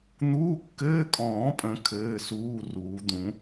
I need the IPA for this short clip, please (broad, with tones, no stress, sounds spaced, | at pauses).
n̪ uː˧˥˧ kː ɘː˧˥˧ kʼ ɔ̃ː˨˩˦ pʼ ə̃˨˩˦ kʰ ɘː˧˥˧ s uː˧˥˧ r uː˨˩˦ d̪ ũ˨˩˦